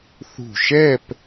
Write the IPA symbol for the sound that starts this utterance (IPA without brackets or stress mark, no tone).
θ